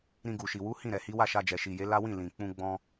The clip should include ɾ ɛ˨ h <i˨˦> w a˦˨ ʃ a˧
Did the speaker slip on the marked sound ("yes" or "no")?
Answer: no